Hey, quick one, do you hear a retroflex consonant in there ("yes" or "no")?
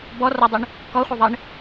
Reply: yes